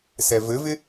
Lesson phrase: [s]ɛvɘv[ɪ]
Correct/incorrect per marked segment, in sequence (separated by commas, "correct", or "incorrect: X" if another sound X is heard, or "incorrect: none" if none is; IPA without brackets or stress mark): correct, correct